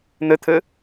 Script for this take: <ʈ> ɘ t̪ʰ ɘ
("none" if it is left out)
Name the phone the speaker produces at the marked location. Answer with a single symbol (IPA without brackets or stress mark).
n̪